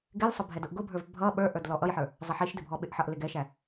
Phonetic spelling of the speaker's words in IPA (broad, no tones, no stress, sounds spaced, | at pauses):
ɡ ɪ l sˤ ʊ bʱ ɛ d ʊ ʔ ɡ ʊ bʱ ə˞ v bʱ ʌ ɓ ə˞ ʔ ə˞ d l ɔ ʔ ʌ j ħ ə˞ | zˤ ɪ ħ i ʃ d ɪ bʱ ɔ ɓ ɪ ʔ ħ ʌ ʔ l ɪ ɡ ɛ ʃ æ